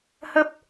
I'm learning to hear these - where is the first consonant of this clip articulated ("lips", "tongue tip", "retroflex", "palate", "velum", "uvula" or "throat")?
throat